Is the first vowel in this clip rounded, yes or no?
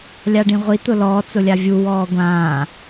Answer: no